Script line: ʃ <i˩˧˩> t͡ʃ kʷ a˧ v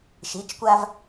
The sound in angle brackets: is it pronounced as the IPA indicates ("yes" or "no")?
yes